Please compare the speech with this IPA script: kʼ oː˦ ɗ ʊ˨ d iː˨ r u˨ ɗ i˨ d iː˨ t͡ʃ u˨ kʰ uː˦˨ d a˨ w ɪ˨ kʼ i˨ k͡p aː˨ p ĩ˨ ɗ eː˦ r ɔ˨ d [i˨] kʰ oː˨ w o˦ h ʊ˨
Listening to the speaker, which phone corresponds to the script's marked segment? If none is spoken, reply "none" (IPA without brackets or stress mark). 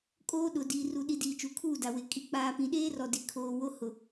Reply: i˨